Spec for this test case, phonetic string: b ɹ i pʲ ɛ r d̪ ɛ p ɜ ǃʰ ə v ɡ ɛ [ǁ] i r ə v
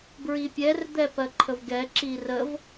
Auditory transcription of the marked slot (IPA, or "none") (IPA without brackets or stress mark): ǁ